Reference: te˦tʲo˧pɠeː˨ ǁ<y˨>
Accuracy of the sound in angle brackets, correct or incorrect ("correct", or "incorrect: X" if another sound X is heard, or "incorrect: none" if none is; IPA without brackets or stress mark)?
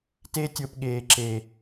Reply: incorrect: e˨